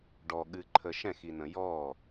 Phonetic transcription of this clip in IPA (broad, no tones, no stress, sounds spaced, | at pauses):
ɖ ɔ ɠ ɨ ǃʰ ə ʃ ɛ̃ x i n ə̃ j ɔ